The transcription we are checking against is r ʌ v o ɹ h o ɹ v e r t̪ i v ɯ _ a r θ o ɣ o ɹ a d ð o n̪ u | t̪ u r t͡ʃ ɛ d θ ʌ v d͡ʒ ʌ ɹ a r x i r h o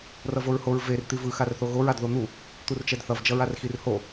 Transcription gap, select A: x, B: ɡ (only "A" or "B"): A